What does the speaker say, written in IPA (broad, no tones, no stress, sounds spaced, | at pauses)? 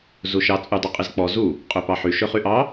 z u ʃ ɑ t͡sʼ y dˤ u qʼ i z k͡p ɔ z u | qʼ ø p ɑ ħ y ʃ ø χ y ʔ ɑ